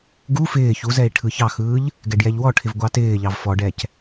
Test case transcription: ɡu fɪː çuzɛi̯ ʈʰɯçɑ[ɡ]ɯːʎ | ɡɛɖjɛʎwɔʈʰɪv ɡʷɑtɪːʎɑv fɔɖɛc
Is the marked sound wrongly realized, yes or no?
yes